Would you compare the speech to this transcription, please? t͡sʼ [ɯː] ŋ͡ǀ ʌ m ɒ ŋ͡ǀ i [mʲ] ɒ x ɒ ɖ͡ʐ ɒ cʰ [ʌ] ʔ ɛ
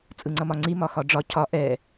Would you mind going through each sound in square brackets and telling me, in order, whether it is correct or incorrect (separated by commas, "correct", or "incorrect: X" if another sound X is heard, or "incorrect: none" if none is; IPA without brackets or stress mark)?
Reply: incorrect: ɯ, incorrect: m, incorrect: ɒ